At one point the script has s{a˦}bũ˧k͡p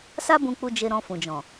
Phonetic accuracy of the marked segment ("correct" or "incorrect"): correct